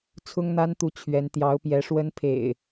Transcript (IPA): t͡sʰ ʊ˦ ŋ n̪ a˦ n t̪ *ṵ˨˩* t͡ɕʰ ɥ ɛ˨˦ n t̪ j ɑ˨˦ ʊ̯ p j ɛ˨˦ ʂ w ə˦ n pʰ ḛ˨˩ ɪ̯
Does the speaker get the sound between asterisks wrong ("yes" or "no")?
yes